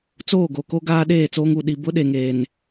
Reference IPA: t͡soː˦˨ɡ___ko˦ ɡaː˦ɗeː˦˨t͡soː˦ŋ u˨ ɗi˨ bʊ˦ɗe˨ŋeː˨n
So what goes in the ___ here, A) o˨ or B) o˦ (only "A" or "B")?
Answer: A